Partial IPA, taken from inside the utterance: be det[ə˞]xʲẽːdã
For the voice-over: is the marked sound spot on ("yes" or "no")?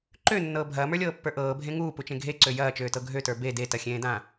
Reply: no